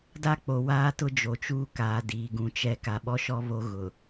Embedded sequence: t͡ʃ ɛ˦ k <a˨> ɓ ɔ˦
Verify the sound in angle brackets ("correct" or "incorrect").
correct